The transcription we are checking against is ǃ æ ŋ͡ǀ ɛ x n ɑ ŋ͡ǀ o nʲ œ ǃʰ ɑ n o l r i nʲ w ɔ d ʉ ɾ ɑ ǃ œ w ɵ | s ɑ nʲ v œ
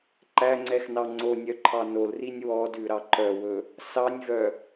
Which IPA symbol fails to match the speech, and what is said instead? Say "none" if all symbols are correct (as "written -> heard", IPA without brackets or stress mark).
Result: none